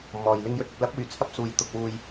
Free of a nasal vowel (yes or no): yes